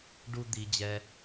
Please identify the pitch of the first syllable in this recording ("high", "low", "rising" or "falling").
high